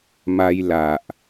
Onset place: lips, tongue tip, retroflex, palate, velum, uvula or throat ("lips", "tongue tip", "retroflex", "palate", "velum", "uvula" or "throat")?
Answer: lips